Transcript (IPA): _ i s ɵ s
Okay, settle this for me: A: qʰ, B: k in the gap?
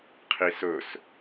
A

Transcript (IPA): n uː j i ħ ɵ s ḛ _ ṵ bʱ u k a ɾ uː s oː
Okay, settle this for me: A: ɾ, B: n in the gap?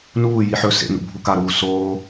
B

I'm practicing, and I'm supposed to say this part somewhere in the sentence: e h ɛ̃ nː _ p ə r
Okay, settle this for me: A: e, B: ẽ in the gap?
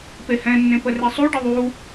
B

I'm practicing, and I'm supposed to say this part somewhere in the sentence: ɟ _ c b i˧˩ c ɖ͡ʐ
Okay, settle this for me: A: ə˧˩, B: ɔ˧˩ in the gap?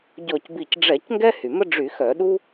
B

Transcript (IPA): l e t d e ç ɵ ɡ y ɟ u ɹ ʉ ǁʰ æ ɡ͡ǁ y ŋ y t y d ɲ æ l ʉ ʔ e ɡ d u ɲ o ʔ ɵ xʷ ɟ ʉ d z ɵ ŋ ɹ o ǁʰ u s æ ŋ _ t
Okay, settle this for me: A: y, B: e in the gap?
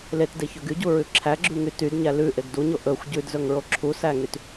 A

